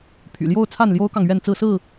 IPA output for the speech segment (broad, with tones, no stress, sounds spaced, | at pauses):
pʰ y̰˨˩ l j o˥˨ ʊ̯ t͡sʰ a˥˨ n l j o˦ ʊ̯ k ɑ˨ ŋ ɥ ɛ˥˨ n t͡s ɹ̩˥˨ s ɹ̩˥˨